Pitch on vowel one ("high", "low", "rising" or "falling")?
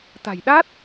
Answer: low